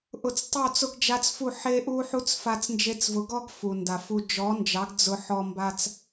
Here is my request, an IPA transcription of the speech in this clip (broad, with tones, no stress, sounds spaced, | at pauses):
ʔ ʊ˨ t͡s tˤ o˦˨ t͡s ʊ˦ ɡ d͡ʒ a˦ t͡s f u˦˨ ħ e˦ ʔ u˦ ħ u˦ t͡s f a˧ t͡s n d͡ʒ e˧ t͡s v ʊ˨˦ ɡ ɔ˦ ɡ f u˨ n d a˨ f u˧ d͡ʒ ɔ˨˦ n d͡ʒ ɑ˨˦ ɡ d͡z ʊ˧ ħ ɔ˧ m b a˧ t͡s